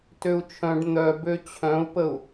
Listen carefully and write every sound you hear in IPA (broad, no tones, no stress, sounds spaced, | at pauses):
t ø u̯ t͡ʃʰ œ̃ ɖ n̪ œ b ø t͡ɕʰ œ̃ u̯ p ə u̯